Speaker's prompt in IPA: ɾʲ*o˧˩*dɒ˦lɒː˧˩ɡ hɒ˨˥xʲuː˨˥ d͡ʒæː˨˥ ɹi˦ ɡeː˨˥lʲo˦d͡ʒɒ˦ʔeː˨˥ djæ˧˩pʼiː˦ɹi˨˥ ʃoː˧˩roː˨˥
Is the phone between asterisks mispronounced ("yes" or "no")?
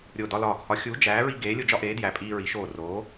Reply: no